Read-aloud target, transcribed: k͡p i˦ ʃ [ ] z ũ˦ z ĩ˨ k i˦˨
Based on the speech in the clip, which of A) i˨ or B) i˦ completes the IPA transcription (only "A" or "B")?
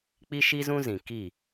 B